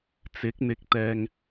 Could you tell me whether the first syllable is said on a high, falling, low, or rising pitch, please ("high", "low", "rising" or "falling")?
rising